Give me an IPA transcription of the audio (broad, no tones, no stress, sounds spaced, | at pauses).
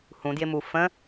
h ũ d j ɪ m u f ə̃